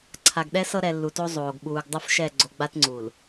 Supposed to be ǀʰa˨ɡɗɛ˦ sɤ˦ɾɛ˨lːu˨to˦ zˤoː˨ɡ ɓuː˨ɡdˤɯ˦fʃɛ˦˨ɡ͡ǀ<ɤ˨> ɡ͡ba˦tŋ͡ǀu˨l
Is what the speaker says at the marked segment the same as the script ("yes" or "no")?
no